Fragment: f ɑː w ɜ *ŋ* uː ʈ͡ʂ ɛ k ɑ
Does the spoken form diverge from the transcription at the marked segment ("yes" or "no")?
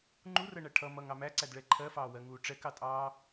no